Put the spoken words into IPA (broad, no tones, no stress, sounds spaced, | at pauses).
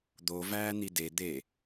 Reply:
d̪ o v æː n̪ i d e d̪ e